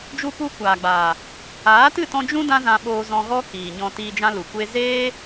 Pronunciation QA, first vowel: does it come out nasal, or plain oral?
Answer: oral